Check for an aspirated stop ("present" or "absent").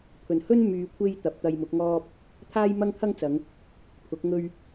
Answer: present